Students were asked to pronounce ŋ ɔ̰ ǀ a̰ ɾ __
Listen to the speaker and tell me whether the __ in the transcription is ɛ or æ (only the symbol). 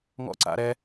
ɛ